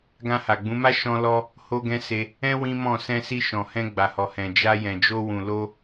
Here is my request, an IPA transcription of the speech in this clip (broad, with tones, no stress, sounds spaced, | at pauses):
ɡ ã˧ h a˨ ɡ͡b ũ˨˦ m a˦ ʃ ɔ̃˦ l ɔ˦ | h o˦ ɡ ɛ̃˦ s e˧ | ɛ̃˦ w ĩ˦ m ɔ̃˦˨ s ɛ̃˧ s i˧ ʃ ɔ̃˨ h ɛ̃˧ ɡ͡b a˨ h ɔ˨ h ɛ̃˨ d͡ʒ a˧ j ɛ̃˨ d͡ʒ o˧ w ũ˨ l o˧